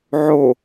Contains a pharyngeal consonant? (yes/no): yes